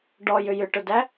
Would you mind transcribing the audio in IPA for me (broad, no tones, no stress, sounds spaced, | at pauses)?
ɖ ɔ j ʏ j ʏ ʈ ʊ d æ